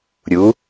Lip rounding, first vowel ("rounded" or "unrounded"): rounded